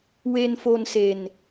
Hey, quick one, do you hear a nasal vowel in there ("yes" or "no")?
no